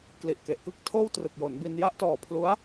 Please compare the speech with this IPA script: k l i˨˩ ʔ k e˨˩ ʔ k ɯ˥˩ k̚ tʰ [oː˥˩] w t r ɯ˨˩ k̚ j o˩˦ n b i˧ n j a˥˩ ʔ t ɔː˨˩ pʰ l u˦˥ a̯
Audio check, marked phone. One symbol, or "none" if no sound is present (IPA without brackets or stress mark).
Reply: oː˥˩